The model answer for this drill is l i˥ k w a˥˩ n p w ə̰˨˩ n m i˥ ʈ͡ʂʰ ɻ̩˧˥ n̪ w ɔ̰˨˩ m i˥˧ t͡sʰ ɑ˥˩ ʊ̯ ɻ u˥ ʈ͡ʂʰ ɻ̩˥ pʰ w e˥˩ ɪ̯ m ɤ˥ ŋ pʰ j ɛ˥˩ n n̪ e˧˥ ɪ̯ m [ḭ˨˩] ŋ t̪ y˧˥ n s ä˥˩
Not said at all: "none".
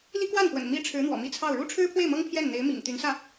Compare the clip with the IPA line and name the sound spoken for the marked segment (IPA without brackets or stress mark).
ḭ˨˩